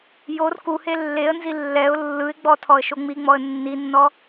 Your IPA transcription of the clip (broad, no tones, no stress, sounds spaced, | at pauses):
j o r k u h e lː e ə̯ n z i lː ɛ ʊ̯ lː ɯ ɪ̯ ɡ͡b ɔ tʰ ɔ ə̯ ʃ o ŋ͡m i ŋ͡m ɔ ə̯ nː i nː ɔ